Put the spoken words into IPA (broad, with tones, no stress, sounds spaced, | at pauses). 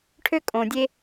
ʈʰ ø˥ kʼ õ˨ dʲ e˦